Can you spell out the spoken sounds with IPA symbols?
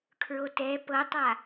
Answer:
kʰ ɹ o t ɛ p ɤ tˤ a

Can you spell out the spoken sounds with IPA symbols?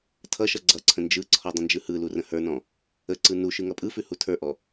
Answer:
tʰ ʌ ʃ ʌ ɡ͡ǀ ʌ ǀʰ ə̃ n d͡ʒ ɯ ǀʰ ɔ dˤ ə̃ n d͡ʒ ɯ h ɯ l u r ə̃ h ə˞ n ɔ̃ | ə ǀ ɯ n u ʃ ɯ ŋ ʌ pʼ ɯ f ʉ h u tʰ ə˞ ʔ ɔ

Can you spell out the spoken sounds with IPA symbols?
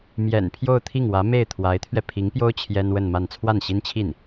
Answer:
m j ɛ̰˨˩ n pʰ j o˥˧ ʊ̯ t̪ʰ i˥˩ ŋ w ä˧˥ m e˥˩ ɪ̯ t̪ʰ w a˧˥ ɪ̯ t̪ʰ ɥ ɛ˧ pʰ i˧˥ ŋ p j o˥ ʊ̯ t͡ɕʰ j ɛ˥ n w ə˥˧ n m a˥˧ n t͡sʰ w a˥˩ n ɕ i˥ n t͡ɕʰ i˥˩ n

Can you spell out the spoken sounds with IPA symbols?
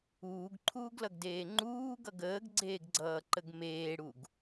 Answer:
uː ɡ ǃʰ uː ɡ l ʌ ɡ d eː ŋ͡ǃ uː ɡ ʌ ɡ əː ɡ ɡ͡ǀ eː ɡ ɡ͡ǀ ʌː ǃ ə ɡ m eː ɽ u ɡ

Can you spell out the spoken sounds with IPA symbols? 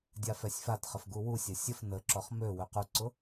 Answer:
dʲ a f ɛ sʲ f a t χ ə f ɡ u w u sʲ ɐ sʲ ə f n ə ǁ ɔ χ m ø w ʏ q u ǀ ʊ

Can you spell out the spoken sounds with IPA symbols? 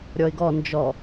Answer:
ɾʲ ɔ ɪ̯ ɡ ɔ n d͡ʒ ɔ

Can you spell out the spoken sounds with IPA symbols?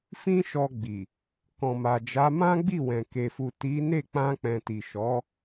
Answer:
f ĩ˦ ʃ ɔ˧ ɡ͡b i˨ | k ɔ̃˨ m a˨ d͡ʒ a˨˦ m ã˦ ɡ͡b i˦˨ w ɛ̃˨ k e˨ f u˨ t i˨˦ n e˦˨ k͡p ã˧ k͡p ɛ̃˨ t i˨ ʃ ɔ˨˦

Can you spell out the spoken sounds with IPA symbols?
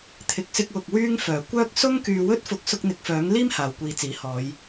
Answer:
t̪ʰ ɪ˨ k̚ s ɪ˧ k̚ w ʊ˨ k̚ w yː˥ ŋ f œː˨˩ kʷ œː˥ k̚ s ʊ˥ ŋ k yː˧ w ɵ˥ t̚ f ʊ˧ k̚ s ʊ˧ k̚ n̪ ɪ˨ k̚ f œː˨˥ ŋ l iː˥ m h aː˨ w kʷ iː˨˧ t͡s iː˨˥ h ɔː˨˧ j

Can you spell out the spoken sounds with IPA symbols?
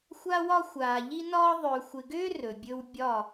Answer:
xʷ a˦ w ɒ˦ xʷ aː˨ ʎ i˦ n ɒː˦ ðˤ ɵː˨ xʷ ɪ˨ ɡ ʏː˦ r ɵ˨ bʲ ɵ˦ w bʲ ɒ˦˨

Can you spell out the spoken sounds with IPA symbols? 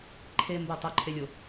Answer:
ǃʰ e m b o tˤ o ǃʰ e lʲ o

